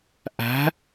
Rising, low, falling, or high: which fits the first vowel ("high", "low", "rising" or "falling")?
rising